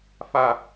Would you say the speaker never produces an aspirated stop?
yes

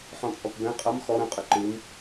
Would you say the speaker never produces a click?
no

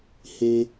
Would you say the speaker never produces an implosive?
yes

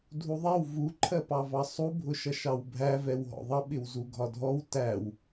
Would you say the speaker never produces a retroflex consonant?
yes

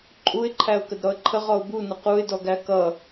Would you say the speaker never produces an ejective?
no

